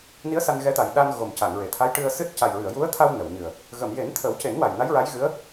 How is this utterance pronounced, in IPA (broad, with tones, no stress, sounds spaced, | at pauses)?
n i˧˥ ə̯ s a˧ n ɣ ɛ˧˥ t̪ a˨˩ j ɗ a˧ n ɣ o˨˩ m c a˨˩˨ ŋ ɹ e˨˩˨ t̪ʰ a˧˥ j ʈ ɨ˧ ə̯ s ɨ˦˥ t̚ c a˨˩ j ɹ ɨ˨˩˨ ə̯ j u˧˥ ə̯ t̪ʰ a˧ w n ə˨˩˨ w ɲ ɨ˨˩ ə̯ | ɣ ə˨˩˨ m j e˨˩˦ n t̪ʰ ə˨˩˦ w c e˨˩˦ n w a˨˩ j n a˧˥ j ɹ a˧˥ j ɣ ɨ˧˥ ə̯